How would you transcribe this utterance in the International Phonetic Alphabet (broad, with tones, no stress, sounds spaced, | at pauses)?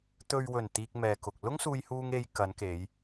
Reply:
t̪ ɵ˨ ɥ w ɵ˨˩ n t̪ iː˧ k̚ m ɛː˨ k ʊ˨ k̚ l ʊ˥ ŋ s uː˧ j h uː˧ ŋ e˧ j k ɐ˨˧ n k e˨˧ j